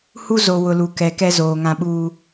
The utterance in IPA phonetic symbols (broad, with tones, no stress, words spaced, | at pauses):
hu˦ zo˨ wʊ˨lu˨kɛ˨ kɛ˦zoː˨ ŋã˨ɓuː˨